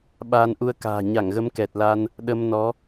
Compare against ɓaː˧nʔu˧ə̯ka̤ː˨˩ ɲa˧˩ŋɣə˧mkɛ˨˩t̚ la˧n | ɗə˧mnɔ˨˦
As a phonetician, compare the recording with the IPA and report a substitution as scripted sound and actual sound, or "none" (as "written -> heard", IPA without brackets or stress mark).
none